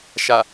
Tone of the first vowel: low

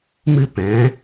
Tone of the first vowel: high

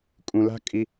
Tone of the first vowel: low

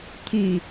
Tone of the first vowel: low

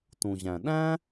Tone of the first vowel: low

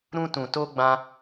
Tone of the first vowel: high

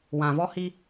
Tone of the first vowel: low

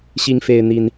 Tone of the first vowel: high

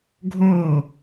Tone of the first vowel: falling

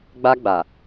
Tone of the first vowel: high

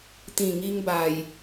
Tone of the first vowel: low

